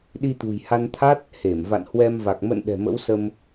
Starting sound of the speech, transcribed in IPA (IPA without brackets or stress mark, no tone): ɗ